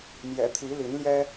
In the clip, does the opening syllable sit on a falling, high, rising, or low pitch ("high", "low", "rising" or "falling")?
low